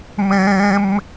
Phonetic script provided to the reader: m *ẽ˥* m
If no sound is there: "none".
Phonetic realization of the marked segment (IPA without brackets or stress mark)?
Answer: ẽ˥